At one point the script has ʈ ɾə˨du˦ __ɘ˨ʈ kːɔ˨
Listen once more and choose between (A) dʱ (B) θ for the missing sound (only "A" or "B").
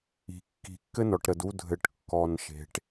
A